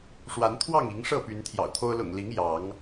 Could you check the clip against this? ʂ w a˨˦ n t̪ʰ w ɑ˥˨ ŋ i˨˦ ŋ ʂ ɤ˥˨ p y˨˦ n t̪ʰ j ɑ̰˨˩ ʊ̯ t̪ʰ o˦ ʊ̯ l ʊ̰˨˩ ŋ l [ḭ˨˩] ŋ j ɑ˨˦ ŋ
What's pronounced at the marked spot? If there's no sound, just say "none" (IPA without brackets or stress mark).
i˨˦